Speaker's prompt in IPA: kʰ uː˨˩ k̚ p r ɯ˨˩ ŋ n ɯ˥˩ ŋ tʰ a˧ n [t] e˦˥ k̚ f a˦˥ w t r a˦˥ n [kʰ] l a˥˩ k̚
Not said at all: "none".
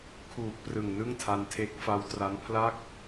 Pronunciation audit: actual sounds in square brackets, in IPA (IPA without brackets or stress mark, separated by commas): tʰ, pʰ